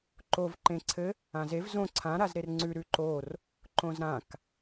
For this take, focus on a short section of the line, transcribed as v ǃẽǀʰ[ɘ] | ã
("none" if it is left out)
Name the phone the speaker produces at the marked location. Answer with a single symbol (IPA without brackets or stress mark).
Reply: ɘ